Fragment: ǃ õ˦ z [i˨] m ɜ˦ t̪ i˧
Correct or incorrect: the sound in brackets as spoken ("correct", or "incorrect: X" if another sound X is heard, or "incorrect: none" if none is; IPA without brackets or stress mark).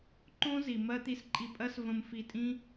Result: correct